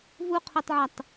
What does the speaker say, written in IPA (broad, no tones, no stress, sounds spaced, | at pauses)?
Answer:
v u qʰ u tˤ ʕ a tˤ